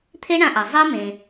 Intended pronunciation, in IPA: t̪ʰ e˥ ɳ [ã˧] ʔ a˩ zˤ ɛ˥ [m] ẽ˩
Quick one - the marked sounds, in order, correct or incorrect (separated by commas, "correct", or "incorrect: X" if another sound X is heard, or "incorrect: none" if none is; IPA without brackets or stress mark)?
correct, correct